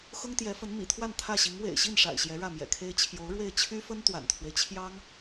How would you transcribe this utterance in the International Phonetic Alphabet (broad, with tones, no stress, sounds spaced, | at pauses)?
x ʊ˥ ŋ t̪ j ɛ˧˥ f ə˧˥ n m ḭ˨˩ t̪ʰ w a˥˧ n t̪ʰ ä˥˩ ɕ i˧˥ ŋ w ḛ˨˩ ɪ̯ ɕ i˥˩ n ʂ a̰˨˩ ɪ̯ ɕ j ɛ˧˥ ɻ ä˥˩ m j ɛ̰˨˩ kʰ e˥ ɪ̯ t͡ɕʰ j o˧˥ ʊ̯ ɻ w e˥˩ ɪ̯ t͡ɕʰ y˥ f ə˥ n t̪ w a̰˨˩ n t̪ʰ w e˦ ɪ̯ t͡ɕʰ j ɑ˥ ŋ